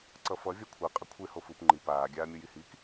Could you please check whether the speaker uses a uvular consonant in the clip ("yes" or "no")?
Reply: yes